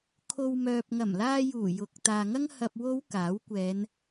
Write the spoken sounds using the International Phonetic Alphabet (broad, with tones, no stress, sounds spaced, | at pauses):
kʰ o˨ w m œː˨ p̚ ŋ ɐ˨˩ m l aː˧ j uː˨˩ j ʊ˨˥ k̚ t̪ aː˨ ŋ ɐ˥ ŋ h ɐ˧ p̚ w o˨˧ w k aː˨˥ w kʷ ɛː˨˧ n